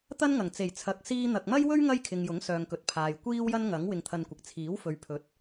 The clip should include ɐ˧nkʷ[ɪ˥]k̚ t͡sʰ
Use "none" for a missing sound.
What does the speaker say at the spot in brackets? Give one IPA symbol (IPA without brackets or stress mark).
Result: ɪ˨